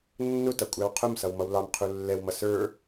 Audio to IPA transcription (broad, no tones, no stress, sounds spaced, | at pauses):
nː ʊ t ʌ kʷʼ æ w qʰ ʊ m s ʌ w m ʌ w l ɑ m qʰ u lː ɛ w m ʌ s ə˞